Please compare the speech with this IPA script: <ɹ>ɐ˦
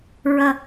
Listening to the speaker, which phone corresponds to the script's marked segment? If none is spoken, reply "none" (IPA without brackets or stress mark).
ɹ